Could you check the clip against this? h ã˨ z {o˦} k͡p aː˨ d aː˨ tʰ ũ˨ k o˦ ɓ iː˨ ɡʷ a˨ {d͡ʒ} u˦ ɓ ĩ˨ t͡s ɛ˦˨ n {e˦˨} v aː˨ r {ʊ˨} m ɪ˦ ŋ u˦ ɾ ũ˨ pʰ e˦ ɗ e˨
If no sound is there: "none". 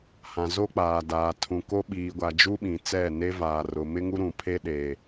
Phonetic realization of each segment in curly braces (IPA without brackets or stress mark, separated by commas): o˦, d͡ʒ, e˦, ʊ˨